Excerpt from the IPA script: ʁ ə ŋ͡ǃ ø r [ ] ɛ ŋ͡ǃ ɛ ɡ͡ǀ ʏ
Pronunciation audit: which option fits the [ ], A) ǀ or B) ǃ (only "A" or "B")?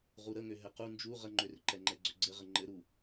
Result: B